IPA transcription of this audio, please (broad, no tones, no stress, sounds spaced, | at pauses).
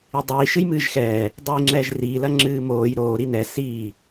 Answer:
i dˤ iː ʃ ɨ j m ɨː ʒ x ɛː | dˤ iː ŋ͡ǁ ɛː ʒ r iː l ɐ ŋ͡ǁ ɨː m oː j ɾ oː ɾ i n ɛ s iː